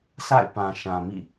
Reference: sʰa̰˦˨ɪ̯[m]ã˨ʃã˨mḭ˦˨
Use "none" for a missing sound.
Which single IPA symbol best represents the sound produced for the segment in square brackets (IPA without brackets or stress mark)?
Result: p